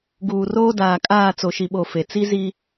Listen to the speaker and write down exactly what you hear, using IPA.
ɡ uː˨ r oː˦ d aː˨ kʼ aː˦˨ t͡s o˨ ʃ i˨ ɓ o˨ f e˨ t͡s i˦ z i˦

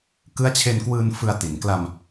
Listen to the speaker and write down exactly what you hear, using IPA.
k ɯ˦˥ a̯ t͡ɕʰ e˧ n k w ɯː˧ n f ɯ˧ a̯ t i˩˦ n k l a˧ m

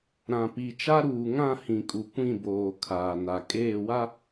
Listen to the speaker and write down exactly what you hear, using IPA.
ɾ ã˨ p i˨ t͡ʃ a˦ ɾ uː˨ ŋ ã˦˨ h ĩ˨ kʼ u˨ kʷ ĩ˦˨ b oː˨ kʰ aː˨ n a˨ kʼ eː˦˨ w a˦

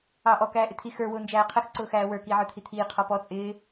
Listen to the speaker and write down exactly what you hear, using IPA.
ɑː ʔ ɔ k æː ʔ ɪ t̪ʰ i x ə˞ w ʊː n d͡ʒ æː qʰ ə x ǀ ʊː x æː w ə˞ k iː ʕ ə˞ t̪ʰ i t̪ʰ iː qʰ ɔ p ɔ t͡sʼ ɪː

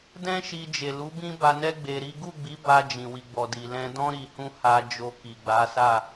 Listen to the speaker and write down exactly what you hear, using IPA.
d ɛ̃˦ ʃ i˧ d͡ʒ e˨ l u˨˦ b ĩ˦ b a˧ n ɛ˦ ɡ͡b e˧ ɾ i˦ ɡ u˦˨ ɡ͡b i˨˦ b a˧ d͡ʒ ĩ˨ w i˨ ɡ͡b ɔ˨ d i˨ l ɛ̃˧ d ɔ̃˦ ɾ i˧ h ũ˦ h a˧ d͡ʒ o˧ k i˨ ɡ͡b a˨˦ s a˦˨

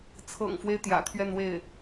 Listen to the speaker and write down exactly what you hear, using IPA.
t͡sʰ ɤ̰˨˩ ŋ f w e˦ ɪ̯ t̪ j ä̰˨˩ t̪ʰ ɥ ɛ˥˧ n w e˥˩ ɪ̯

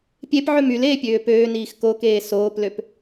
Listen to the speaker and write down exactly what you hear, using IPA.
pʲ e p ʕ ø m y l eː pʲ øː p øː n iː x k o k eː s oː p l ø p

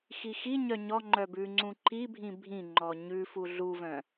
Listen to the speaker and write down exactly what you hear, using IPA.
x i x i ɲ œ ɲ ɔ ŋ͡ǃ œ b ʉ ŋ͡ǀ ũ ǃ i bʱ ĩ bʱ ĩ ŋ͡ǃ ɔ ɲ ʉ f u ɮ u v œ̃

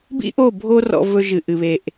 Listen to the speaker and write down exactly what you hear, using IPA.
b ḭ˦ ʔ o˦˨ bʱ o˦ r ɔ̰˦ v ɵ˦ ʒ ɨ˨ ʔ ɨ˨ β e˨ ʔ

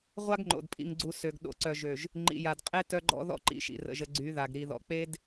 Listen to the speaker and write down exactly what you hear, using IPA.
ʁʷ a˦ ɡ ŋ͡ǃ o̰˨ d pʼ ḭ˨ ŋ ɡ͡ǀ u˨ s ø˨ ɡ ɗ o̰˨ ǀ œ˨ ʒ ø˨ ʒ | ŋ͡ǃ ḭ˨ j a˨ d qʼ e˦ t œ˦ ɡ͡ǃ ɔ̰˦ ð ɔ̰˦ ǃ ḭ˨ ʃ ḭ˨ r ə̰˨ ʒ ə˨ ɡ͡ǀ y˨˦ ð a˨ ɡ ɾ i˨ ð ɔ̰˨ k͡p e˦ d

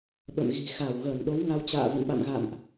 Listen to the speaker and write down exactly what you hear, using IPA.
ɓ ə̰˧˨ m ɣ i̤˨˩ x a˧˩ w ɣ əː˧˩ n ɗ o˨˦ w ŋ a˧ w t͡ɕ a̰ː˧˨ v ə̰˧˨ n ɓ a̰˧˨ m ɣ a̰˧˨ m ʔ

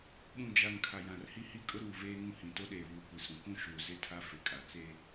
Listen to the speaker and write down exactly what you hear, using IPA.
ɓ ũ˨ d͡ʒ a˨ ŋ kʰ a˨ j ã˨ r h i˦ h i˦ kʼ ʊ˦ ɾ uː˨ v eː˦ ŋ ũ˦ h ĩ˨ t o˦ ɗ eː˨ β uː˨ kʷ i˨ s ũ˨ k ũ˦ ʃ uː˨ z e˦ tʰ a˦ f ɪ˨ kʼ a˨ t͡s e˦

